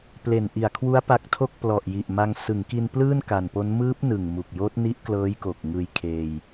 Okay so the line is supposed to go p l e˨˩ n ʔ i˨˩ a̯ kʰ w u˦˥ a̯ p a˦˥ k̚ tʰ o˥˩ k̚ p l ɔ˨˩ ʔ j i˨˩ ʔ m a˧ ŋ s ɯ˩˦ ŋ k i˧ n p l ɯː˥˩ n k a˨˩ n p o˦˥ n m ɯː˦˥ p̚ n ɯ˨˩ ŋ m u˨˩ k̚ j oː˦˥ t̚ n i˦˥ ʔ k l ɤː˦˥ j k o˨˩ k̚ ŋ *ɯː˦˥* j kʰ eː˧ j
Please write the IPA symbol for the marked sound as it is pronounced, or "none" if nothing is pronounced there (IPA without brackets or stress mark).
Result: ɯː˧